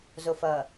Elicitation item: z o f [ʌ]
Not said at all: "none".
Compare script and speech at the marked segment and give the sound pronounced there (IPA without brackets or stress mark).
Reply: ʌ